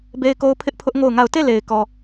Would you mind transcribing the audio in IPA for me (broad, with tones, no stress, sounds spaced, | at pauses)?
b e˦ ɪ̯ k o˦ ʊ̯ pʰ ɪ˦ ʔ pʰ ʊ˦ ʔ ŋ o˦˨ ʊ̯ ŋ a˦˨ ʊ̯ t e˦˨ l e˨ ɪ̯ k ɔ˨